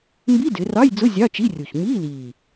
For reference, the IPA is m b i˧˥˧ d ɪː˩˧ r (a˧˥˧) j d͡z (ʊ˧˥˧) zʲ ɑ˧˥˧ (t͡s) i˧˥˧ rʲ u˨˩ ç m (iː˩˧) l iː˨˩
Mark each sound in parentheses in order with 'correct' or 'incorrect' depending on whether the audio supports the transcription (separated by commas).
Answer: incorrect, correct, incorrect, incorrect